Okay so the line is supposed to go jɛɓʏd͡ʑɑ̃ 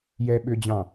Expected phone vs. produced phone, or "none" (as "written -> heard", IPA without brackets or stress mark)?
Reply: none